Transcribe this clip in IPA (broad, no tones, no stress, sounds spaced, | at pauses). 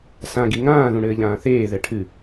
s ã ɡ i ŋ ãː ð ũ ɽ ɘː ʎ ãː θ eː ð ɛ ʈʰ ɨ